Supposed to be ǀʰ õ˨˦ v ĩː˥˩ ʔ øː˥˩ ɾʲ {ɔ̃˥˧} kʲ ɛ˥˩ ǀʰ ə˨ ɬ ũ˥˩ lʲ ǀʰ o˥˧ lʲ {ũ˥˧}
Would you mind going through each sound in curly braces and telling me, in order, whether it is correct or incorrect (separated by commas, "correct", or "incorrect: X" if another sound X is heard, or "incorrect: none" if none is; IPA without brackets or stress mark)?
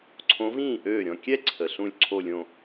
correct, incorrect: õ˥˧